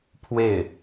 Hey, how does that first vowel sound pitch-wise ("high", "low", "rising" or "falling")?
falling